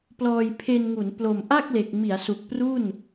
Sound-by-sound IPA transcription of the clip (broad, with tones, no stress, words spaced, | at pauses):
plɔː˧jpʰe˧nŋu˩˦n plo˨˩mʔa˥˩k̚ le˨˩k̚ mi˩˦a̯ su˨˩k̚pru˥˩n